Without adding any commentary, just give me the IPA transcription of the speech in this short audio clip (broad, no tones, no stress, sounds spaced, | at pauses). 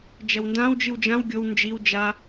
d͡ʒ ɐ w n d ã w d͡ʒ ɨ w d͡ʒ ã w ɡʲ o w n d͡ʒ i w d͡ʒ a